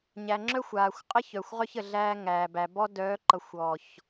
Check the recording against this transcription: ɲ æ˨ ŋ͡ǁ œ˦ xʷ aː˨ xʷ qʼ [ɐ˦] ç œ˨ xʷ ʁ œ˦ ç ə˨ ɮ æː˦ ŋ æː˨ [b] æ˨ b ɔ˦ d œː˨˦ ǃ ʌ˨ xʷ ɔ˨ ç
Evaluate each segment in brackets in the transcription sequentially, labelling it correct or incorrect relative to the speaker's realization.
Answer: incorrect: ə˦, correct

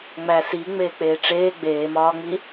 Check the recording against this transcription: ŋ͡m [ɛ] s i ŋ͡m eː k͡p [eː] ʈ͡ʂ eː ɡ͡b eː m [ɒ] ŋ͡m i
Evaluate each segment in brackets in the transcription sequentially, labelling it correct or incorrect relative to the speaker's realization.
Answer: incorrect: æ, correct, incorrect: ɒː

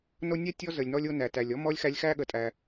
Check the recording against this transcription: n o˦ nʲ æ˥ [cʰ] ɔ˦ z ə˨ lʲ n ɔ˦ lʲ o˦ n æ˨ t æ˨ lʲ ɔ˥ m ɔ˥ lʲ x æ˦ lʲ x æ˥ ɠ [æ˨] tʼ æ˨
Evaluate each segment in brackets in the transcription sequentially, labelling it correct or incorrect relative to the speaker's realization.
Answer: incorrect: tʲ, incorrect: ə˨

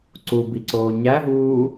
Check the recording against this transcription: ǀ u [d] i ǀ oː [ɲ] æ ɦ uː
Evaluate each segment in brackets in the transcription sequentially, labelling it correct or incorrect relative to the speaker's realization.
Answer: incorrect: b, correct

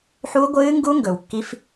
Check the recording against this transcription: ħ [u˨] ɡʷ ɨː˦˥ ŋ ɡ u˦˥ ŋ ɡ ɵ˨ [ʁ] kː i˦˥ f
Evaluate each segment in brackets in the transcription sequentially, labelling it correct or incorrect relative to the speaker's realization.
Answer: incorrect: u˦˥, incorrect: w

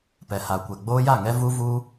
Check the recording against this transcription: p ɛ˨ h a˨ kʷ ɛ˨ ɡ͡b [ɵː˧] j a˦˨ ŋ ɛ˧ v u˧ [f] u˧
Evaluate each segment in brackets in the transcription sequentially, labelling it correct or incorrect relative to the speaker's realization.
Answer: incorrect: oː˧, incorrect: v

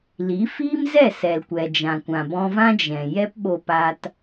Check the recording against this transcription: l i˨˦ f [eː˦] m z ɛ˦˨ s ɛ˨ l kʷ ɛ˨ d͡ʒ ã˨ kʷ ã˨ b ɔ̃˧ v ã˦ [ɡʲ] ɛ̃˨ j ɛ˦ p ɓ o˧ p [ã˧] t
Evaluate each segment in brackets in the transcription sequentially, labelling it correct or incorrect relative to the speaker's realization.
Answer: incorrect: iː˦, incorrect: d͡ʒ, incorrect: a˧

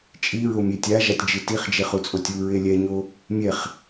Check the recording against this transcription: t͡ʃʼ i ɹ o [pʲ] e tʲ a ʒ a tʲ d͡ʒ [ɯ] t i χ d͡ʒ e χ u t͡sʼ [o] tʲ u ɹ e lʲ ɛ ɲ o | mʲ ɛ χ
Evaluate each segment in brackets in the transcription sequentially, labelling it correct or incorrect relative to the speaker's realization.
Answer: incorrect: mʲ, correct, correct

